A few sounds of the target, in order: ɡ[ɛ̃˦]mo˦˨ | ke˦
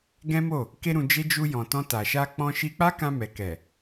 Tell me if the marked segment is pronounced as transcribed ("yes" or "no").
yes